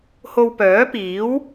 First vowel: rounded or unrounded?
rounded